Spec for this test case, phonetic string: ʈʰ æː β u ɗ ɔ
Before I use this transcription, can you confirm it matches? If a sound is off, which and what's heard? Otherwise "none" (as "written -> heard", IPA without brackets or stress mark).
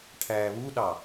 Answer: ɔ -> ɑ